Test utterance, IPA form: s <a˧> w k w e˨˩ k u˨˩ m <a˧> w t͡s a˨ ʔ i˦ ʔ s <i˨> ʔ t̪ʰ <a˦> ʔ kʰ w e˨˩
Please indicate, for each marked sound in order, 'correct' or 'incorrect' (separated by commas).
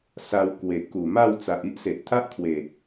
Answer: correct, incorrect, incorrect, correct